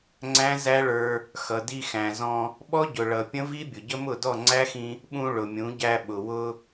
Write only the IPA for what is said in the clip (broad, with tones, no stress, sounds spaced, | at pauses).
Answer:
ŋ͡ǀ æ̃˦ z æ˦ ɭ ə˞˧ | x ʌ˨ d i˧ x æ̃˨ z ɔ̃˧ | ɓ ɔ˦ ɟ ʊ˨ ɭ ʌ˨ pʲ ə̃˦ v i˦ bʲ ʊ˨ ɟ ə˦ m ʊ˦˨ d ɔ˦˨ ŋ͡ǀ æ˦ x ĩ˧ | ɓ ũ˧ ɭ ʊ˨ mʲ ũ˨˦ ɟ æ˧ ɓ ʊ˨ w ʊ˧